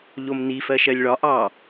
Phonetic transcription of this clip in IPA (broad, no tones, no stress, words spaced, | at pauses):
ʎomni fɜʃɜlʲɭɒ ʔɑ